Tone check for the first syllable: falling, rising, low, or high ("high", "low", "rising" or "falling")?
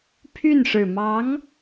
falling